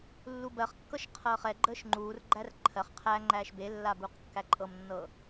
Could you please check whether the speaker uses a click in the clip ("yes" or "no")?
yes